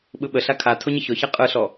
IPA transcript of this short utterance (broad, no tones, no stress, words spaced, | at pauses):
ɓɯɓəɬa kʰa tʰoɲɯçɔça qʼɯɬɔ